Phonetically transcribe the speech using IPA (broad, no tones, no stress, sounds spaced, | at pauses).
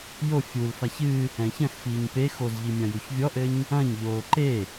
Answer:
j o fʲ u l f a ç ɨ | ɛ̃ ç ɐ̃ x f iː ɲ p e x o z ʎ i mʲ ɐ̃ j u ç vʲ ɔ ʔ ɘ ɲ | ɐ̃ ɲ ʎ oː ǃ e